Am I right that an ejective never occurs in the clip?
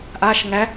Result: yes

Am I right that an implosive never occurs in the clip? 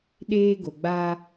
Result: no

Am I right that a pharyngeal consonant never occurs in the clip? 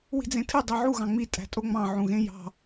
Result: no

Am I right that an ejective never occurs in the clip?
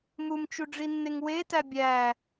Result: yes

